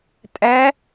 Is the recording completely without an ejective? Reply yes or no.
no